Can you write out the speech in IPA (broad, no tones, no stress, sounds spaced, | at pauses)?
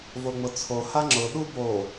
v o ŋ͡m ʊ t͡sʰ o h a ŋ͡ǁ ʊ ɗ u b o